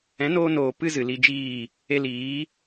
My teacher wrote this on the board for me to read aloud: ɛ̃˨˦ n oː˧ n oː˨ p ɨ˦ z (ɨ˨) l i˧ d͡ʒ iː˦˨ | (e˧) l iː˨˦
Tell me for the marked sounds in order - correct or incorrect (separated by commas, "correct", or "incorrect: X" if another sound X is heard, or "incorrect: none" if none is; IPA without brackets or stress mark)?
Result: correct, correct